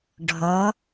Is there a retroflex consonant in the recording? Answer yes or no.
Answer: yes